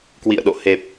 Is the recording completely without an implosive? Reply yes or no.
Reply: no